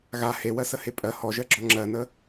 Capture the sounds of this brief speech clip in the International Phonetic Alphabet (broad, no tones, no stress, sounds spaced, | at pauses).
ɣ a h e w ɜ s ə h e pʼ ɜ h ɔ ʒ ɜ ɡ͡ǁ ɔ ŋ͡ǁ ɜ n ə